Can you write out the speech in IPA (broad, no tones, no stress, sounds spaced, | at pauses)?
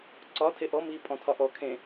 ǀ ɒ tʰ e ʔ ɔ m iː pʼ ɔ̃ tʰ ɒ ʔ ɔ kʰ ẽ